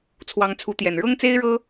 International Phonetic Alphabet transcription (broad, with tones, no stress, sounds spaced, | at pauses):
t͡sʰ w ɑ˧˥ ŋ t͡sʰ u˧˥ t̪ j ɛ˨˩ n ɻ ɤ˥ ŋ t͡s e˥ ɪ̯ ɻ ɤ˥